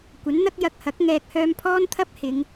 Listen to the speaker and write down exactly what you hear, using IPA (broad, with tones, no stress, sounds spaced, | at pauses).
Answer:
kʷ ɐ˨˥ n n̪ ɐ˥ k̚ j ɐ˧ k̚ h ɐ˨˥ k̚ ŋ ɛː˧ k̚ h œː˧ m pʰ ɔː˥ n t̪ʰ ɐ˥ p̚ h ɪ˨˧ ŋ